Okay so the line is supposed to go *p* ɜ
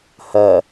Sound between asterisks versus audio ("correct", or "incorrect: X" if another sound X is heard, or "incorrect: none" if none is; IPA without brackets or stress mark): incorrect: h